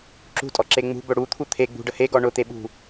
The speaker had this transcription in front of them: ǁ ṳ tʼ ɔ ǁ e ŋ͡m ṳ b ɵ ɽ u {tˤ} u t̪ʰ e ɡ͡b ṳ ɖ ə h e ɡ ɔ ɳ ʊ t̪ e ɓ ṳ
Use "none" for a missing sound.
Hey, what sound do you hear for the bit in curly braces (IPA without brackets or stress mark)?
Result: t̪ʰ